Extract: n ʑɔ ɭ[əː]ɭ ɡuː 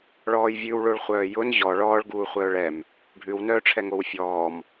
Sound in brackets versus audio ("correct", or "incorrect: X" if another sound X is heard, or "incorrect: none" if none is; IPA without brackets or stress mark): incorrect: ɔː